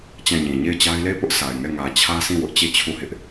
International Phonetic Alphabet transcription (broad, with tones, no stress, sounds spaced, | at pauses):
t͡ɕ ã˦˨ ɲ ĩ˨ ɲ e˦˨ ɪ̯ t͡ɕ a˦ ɪ̯ l e˦˨ ɪ̯ p ʊ˦ ʔ s a˨ ɪ̯ ŋ ɛ˦˨ ŋ ä˨ t͡ɕʰ ä˦ s ĩ˦˨ w ʊ˦ ʔ t͡ɕ e˦˨ t͡ɕʰ u˦˨ h ɪ˦ ʔ